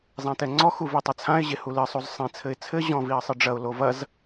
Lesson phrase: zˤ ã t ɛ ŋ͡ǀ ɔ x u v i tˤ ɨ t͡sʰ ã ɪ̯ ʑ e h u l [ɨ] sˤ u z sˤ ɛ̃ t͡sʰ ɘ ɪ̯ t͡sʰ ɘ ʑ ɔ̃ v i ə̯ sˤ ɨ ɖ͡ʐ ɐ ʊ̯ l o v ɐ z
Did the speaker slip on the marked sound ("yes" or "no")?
no